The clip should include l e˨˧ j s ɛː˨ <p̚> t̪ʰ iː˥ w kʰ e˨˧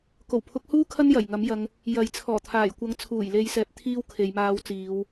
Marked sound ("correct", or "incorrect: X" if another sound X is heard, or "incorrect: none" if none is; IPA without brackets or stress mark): correct